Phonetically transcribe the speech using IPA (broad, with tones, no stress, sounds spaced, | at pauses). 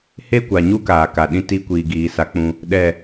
h e˦ kʷ a˨ ɲ u˦ k aː˨ k a˨ ɗ ĩ˧ t i˧ kʷ iː˨ ɡ iː˧ s a˦ k͡p ũ˦ | ɗ ɛ˦˨